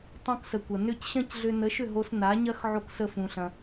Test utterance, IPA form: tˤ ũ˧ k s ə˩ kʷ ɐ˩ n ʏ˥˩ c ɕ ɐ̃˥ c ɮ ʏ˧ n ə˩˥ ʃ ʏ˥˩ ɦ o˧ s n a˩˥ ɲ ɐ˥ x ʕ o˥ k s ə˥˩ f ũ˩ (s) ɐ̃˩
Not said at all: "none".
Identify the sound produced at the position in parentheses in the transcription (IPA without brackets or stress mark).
ɬ